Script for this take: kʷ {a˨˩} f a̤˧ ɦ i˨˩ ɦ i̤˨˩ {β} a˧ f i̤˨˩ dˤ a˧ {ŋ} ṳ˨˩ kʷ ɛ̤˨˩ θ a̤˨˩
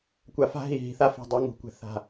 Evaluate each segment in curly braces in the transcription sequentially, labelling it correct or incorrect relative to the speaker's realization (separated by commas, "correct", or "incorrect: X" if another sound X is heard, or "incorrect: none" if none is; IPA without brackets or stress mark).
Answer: correct, incorrect: θ, correct